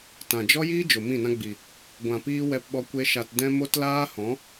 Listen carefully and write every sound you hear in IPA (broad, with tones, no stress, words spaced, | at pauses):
tã˨ d͡ʒɔ˦jiː˦ d͡ʒo˨mĩ˦˨nã˦ɡ͡bi˨ | ɡʷã˨piː˧ wɛ˧pɓɔ˧kʷe˧ ʃa˨tdɛ̃˧ mo˦tlaː˦ hɔ̃˨˦